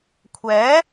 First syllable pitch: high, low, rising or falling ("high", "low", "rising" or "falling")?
rising